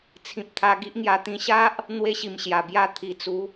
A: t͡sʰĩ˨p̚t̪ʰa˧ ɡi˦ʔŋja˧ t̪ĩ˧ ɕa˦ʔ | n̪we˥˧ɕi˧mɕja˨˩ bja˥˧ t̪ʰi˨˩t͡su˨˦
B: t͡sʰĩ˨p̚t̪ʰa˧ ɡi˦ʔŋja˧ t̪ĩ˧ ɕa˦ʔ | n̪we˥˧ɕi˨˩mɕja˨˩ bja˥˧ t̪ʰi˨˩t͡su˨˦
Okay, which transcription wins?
B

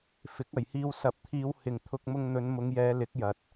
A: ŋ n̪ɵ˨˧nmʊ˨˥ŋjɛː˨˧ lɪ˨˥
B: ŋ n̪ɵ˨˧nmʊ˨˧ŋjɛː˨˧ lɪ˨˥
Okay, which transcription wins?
B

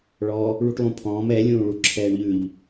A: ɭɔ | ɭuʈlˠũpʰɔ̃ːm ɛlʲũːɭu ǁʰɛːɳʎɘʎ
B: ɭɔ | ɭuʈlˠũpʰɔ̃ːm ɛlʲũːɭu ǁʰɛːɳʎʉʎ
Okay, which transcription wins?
B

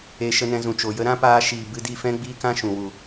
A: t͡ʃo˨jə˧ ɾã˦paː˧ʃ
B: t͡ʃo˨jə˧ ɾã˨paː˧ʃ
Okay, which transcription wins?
A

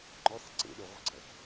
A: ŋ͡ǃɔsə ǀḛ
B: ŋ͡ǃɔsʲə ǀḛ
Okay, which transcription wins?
A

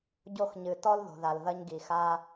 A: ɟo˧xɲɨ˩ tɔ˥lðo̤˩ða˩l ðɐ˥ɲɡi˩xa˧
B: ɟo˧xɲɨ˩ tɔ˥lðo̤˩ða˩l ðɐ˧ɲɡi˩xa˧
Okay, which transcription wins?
B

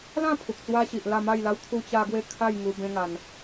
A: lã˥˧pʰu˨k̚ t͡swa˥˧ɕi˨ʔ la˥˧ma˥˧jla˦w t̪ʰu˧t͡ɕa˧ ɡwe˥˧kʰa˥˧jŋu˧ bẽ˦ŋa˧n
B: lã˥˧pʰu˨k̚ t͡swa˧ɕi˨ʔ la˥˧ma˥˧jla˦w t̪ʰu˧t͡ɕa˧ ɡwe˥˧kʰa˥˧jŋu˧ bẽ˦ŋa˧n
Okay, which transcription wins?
B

